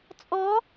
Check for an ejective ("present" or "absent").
present